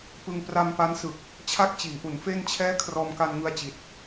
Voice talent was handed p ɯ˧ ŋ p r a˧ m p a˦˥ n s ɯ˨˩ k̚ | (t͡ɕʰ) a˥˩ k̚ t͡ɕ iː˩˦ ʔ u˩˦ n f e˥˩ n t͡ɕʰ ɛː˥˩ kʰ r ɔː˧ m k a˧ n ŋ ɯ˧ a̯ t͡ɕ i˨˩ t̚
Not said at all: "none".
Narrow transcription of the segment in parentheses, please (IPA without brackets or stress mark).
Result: t͡ɕʰ